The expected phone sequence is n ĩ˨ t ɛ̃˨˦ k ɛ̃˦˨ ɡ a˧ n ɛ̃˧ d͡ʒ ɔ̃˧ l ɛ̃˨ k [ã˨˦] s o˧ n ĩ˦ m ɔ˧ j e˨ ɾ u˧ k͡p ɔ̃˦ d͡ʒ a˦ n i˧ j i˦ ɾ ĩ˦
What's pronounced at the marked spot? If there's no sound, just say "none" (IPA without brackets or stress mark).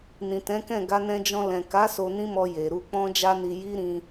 a˨˦